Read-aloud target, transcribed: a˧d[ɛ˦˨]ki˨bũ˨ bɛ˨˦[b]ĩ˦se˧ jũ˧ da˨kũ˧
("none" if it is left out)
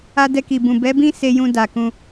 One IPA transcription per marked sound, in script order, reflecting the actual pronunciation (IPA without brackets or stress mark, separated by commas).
ɛ˧, b